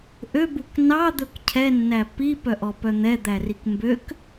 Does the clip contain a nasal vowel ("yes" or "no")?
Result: no